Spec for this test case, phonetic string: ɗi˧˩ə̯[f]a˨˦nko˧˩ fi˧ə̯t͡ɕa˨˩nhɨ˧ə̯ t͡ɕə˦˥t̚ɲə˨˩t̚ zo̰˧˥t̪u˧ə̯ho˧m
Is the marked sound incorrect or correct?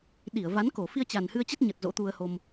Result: incorrect